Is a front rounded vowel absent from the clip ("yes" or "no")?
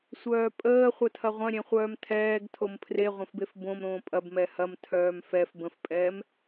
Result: no